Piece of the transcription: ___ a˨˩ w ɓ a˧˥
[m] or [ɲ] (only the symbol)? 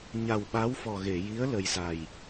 ɲ